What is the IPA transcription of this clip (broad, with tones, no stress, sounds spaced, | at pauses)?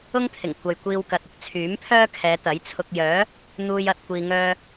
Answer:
ʊ˥ ŋ t̪ʰ ɪ˨˩ ŋ kʷ ɐ˨ j kʷ iː˧ w k ɐ˨ t̚ ɪ˥ k̚ t͡sʰ yː˨˥ m pʰ œː˥ kʰ ɛː˨˧ t̪ ɐ˨˥ j t͡sʰ ʊ˧ k̚ j œː˨˥ | n̪ uː˧ j ɐ˨ t̚ kʷ iː˨ ŋ œː˧